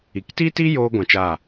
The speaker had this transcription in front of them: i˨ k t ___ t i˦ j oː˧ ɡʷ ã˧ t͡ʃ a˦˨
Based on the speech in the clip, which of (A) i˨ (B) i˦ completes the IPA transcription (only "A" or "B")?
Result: B